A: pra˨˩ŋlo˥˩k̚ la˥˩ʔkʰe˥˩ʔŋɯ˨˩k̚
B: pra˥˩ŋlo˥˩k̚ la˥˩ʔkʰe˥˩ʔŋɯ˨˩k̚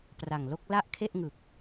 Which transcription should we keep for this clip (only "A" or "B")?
A